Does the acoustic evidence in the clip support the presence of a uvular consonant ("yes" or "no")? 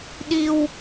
no